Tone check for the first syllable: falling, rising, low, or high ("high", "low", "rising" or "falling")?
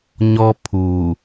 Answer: high